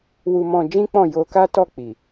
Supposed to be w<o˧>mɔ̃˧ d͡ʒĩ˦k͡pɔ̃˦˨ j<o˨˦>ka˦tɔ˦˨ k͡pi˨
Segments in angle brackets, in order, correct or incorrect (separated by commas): incorrect, incorrect